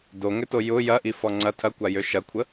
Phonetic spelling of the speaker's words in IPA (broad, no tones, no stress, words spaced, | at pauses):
doŋʏto jʊ jɐʔi fɔŋ͡ǀɐ tʰɐkʷa jøʃɐkʷʰə